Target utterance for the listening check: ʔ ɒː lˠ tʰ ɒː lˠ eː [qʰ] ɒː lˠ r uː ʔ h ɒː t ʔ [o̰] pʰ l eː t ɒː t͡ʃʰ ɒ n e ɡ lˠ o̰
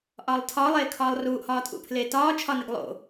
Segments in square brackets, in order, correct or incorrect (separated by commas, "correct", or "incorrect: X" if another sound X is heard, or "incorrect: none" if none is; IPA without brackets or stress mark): incorrect: kʰ, incorrect: ṵ